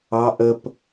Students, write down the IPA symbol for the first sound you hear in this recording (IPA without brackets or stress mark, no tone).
ɑ